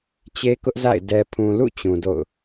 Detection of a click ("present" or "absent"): absent